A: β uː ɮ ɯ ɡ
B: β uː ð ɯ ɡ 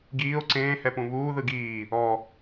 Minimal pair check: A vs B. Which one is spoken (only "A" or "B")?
B